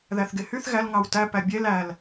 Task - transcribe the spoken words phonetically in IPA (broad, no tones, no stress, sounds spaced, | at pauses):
ð æ θ ɡ e h y θ ɣ æ l ŋ ɑ w t æ p æ bʲ e l æ l